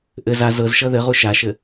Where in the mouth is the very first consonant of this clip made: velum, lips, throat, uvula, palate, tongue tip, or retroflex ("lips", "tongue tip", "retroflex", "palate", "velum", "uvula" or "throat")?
throat